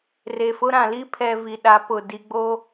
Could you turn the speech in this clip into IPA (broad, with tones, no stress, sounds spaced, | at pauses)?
r e˨ f ʊ˦ ɾ ã˨ l i˦ pʰ ɛ˨ v i˨ ɗ a˨˦ p ʊ˨ d i˨ ɡ͡b o˦